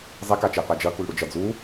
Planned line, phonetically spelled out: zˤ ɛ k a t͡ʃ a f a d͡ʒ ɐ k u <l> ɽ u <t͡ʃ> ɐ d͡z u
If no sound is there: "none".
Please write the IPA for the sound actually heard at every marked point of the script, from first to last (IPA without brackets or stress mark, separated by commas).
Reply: l, d͡ʒ